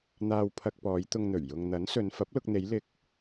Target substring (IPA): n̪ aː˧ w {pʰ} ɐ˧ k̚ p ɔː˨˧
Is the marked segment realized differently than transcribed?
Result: no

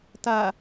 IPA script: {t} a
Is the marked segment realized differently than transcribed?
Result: no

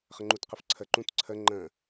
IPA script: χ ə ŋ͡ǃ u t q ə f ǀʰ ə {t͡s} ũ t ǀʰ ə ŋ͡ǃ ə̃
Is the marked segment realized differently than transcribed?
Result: yes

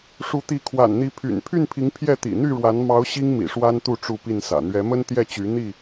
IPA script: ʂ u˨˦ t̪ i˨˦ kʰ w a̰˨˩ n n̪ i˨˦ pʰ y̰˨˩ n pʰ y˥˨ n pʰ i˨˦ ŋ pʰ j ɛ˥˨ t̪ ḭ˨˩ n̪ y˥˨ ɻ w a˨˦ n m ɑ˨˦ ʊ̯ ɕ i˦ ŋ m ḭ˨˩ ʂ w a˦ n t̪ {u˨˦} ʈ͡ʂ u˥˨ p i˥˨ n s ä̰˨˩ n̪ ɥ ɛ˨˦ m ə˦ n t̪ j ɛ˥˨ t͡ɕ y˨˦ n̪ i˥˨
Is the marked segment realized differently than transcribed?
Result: yes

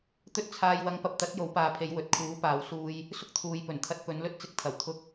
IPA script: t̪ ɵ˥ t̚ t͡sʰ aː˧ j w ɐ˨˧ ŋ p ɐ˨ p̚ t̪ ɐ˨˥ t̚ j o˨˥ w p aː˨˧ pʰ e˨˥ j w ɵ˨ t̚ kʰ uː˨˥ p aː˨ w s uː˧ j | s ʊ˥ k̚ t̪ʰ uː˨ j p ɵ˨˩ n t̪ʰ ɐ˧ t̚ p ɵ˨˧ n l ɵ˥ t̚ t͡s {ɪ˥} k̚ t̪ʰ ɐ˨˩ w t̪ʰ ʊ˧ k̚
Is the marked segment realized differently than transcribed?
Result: yes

